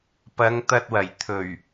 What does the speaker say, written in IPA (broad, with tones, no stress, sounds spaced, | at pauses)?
p ɐ˨˧ ŋ t̪ ɐ˧ t̚ w ɐ˨˩ j t̪ʰ ɵ˨˩ ɥ